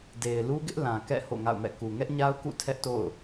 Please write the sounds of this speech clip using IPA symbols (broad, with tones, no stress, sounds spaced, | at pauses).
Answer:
d e˨ ɪ̯ l u˦ ɡ ɪ˦ ʔ l ã˨ k ɛ̰˦˨ h o̰˦˨ ŋ a̰˦˨ ʊ̯ m ɛ̰˦˨ k u˨ ŋ ɛ˦ ʔ ɲ a˦ ʊ̯ k ṵ˦˨ tʰ ɛ˦ ʔ t o̰˦˨ ʊ̯